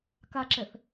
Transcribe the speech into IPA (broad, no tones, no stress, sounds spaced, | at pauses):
k a ǁ ɛ θ